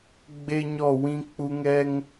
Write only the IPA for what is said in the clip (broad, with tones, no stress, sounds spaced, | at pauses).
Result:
ɡ͡b e˦ ɲ ɔ˦˨ w ĩ˦ k͡p u˦ ŋ ɛ˦ ŋ